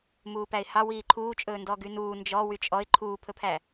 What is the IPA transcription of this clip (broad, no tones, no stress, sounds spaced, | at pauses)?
m uː p æ ɪ̯ h ɑ w iː ǃʰ uː t͡ʃʼ ɵː n d ɔ ɡ y n uː n d͡ʒ ɔ w y t͡ʃʼ ɔ ɪ̯ ǃʰ uː pʰ ɵ pʰ æ